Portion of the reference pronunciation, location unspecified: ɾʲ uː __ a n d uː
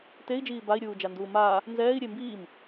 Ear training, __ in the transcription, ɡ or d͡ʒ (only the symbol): d͡ʒ